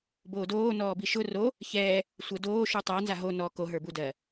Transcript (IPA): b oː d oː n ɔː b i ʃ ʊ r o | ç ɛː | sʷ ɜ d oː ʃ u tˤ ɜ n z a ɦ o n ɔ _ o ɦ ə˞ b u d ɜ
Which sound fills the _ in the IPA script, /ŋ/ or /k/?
k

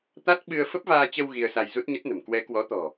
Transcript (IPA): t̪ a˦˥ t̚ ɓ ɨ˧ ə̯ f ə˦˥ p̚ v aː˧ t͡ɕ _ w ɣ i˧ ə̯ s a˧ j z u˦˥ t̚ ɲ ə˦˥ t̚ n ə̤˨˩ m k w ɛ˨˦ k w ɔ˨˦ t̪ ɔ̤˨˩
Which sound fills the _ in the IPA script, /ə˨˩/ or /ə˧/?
ə˧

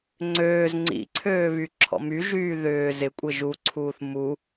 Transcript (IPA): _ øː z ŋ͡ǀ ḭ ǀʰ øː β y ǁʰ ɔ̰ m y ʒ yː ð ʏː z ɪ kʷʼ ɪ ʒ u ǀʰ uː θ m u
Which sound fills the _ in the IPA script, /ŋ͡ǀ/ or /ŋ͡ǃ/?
ŋ͡ǀ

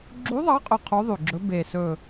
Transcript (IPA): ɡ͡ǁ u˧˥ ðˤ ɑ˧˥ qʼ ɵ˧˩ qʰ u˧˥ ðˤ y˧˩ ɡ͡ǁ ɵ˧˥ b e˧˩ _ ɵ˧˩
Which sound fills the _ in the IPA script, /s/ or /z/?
s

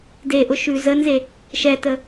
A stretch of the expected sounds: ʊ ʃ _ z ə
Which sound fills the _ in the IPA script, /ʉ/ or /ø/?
ʉ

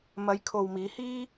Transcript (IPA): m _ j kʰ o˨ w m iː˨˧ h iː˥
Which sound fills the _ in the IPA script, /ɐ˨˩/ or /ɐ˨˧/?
ɐ˨˧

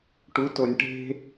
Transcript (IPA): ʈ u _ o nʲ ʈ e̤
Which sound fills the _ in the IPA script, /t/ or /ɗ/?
t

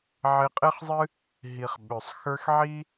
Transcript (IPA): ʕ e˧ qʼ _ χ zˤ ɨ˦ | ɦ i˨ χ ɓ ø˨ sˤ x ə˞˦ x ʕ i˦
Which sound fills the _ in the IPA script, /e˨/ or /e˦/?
e˦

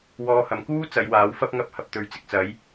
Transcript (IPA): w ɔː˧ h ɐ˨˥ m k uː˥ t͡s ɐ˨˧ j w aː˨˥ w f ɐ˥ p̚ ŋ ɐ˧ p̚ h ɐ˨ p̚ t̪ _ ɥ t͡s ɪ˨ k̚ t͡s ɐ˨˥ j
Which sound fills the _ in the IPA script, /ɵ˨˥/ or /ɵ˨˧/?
ɵ˨˧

